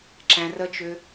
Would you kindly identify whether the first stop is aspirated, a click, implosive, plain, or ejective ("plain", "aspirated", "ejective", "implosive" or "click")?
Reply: click